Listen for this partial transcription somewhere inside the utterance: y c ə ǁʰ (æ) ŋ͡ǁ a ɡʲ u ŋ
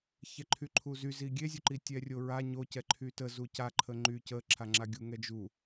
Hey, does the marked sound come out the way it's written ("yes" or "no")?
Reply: no